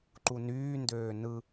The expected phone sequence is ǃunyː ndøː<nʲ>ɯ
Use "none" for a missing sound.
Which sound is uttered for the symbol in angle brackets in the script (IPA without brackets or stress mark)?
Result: n